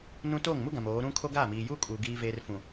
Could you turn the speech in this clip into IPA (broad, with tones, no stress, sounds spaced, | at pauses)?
n ũ˦ t oː˦˨ ŋ m u˦ ɡ ã˨ m oː˨˦ ɾ ũ˦ kʰ o˦ ɡ aː˦˨ m iː˨ j uː˦ kʼ uː˨ ɡ iː˦ v eː˦ r f ũ˨